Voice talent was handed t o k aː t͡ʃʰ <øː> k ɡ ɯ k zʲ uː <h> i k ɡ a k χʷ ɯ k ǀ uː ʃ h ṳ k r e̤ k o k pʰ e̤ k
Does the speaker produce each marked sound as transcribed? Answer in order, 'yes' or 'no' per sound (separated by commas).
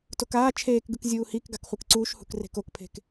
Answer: no, yes